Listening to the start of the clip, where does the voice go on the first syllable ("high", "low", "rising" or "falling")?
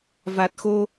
low